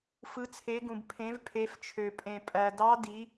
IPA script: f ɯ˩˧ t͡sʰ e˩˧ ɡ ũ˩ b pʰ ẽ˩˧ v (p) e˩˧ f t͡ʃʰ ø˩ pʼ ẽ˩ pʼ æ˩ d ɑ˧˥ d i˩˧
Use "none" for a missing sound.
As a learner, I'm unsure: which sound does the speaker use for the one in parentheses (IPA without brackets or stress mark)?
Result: pʰ